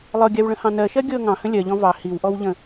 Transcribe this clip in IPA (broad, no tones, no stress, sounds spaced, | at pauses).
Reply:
lˠ ɤ ɡʲ a w ɭ ə̃ h ɑ̃ n ɜ ʃ ɜ ɡʲ ɤ ŋ ɑ̃ h ə̃ lʲ ɜ ʎ ɔ̃ v ɑ h i w ʔ ɔ w ʎ ə̃